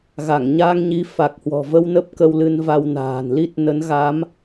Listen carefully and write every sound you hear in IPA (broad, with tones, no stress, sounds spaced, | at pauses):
ɣ a˧˩ ŋ ɲ aː˧ ŋ ɲ i˨˦ f a˨˩ k̚ h w ɔ̤˨˩ v ə˧ w n ə˦˥ p̚ k ə˧ w l ɨ˧ n v a˧ w n a̤ː˨˩ n l i˦˥ t̚ n ə˨˦ n ɣ a˨˦ m